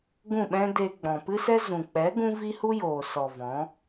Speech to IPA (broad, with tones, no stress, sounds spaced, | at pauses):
ɡ ũ˦˨ ɓ ɛ̃˦ d e˧ ɡ͡b ɔ̃˨ p ɨ˦ s ɛ˦ z ũ˨ k͡p ɛ˨˦ ɡ ũ˦ v i˦ h u˦ j oː˨ s ɔ˨ v ɔ̃˨˦